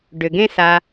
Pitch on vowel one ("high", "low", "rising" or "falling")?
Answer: low